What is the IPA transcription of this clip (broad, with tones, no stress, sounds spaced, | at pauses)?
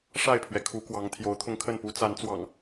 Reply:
ʂ a˥˨ ɪ̯ pʰ ɥ ɛ˩ kʰ u˨˦ k w ɑ˨˦ ŋ t̪ʰ j o˨˦ ʊ̯ t̪ʰ ʊ˧ ŋ kʰ ə˥˨ n p u˨˦ t͡s a˨˦ n t͡s w ɑ̰˨˩ ŋ